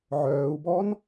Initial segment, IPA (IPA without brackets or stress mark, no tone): ʕ